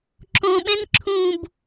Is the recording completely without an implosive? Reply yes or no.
no